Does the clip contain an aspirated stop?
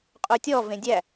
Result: no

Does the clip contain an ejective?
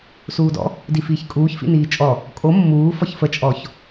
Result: yes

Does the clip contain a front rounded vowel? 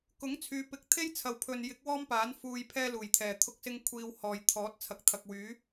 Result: yes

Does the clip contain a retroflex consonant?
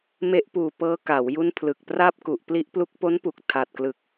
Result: no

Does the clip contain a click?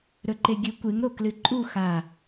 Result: yes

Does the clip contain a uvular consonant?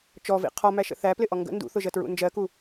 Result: yes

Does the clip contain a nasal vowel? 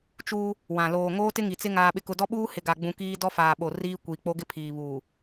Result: yes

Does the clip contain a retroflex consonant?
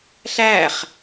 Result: no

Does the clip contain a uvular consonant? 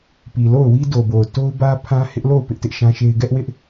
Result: no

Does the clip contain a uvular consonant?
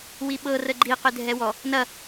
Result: yes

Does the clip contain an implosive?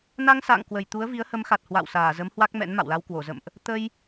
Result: no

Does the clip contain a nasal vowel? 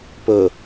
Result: no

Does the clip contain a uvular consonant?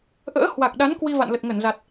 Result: no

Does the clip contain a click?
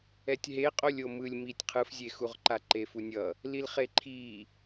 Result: yes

